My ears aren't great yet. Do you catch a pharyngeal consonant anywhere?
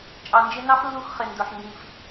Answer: yes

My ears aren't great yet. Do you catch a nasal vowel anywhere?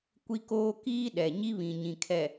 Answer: yes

